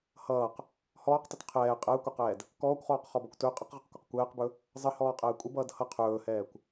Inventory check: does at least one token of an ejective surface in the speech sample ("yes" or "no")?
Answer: yes